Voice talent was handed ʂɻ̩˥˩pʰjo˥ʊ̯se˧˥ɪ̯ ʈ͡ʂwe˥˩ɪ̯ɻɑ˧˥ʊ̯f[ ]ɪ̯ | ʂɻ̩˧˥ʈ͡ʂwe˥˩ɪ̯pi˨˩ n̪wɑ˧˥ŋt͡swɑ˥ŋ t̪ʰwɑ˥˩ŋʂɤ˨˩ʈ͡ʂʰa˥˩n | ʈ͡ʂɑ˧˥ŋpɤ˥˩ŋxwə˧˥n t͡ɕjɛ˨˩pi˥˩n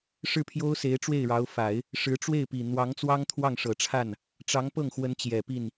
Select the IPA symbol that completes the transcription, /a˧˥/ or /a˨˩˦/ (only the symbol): a˨˩˦